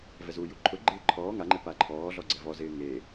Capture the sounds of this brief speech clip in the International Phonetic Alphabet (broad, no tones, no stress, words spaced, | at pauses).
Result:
vɛzuju ǃʰʊɡ͡ǃɪː ǃʰɔː ŋaŋ͡ǃɪ paǃʰɔːɮɔ ɡ͡ǀɛvɔzɪː ŋe